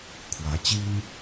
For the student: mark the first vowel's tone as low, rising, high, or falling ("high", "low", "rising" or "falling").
rising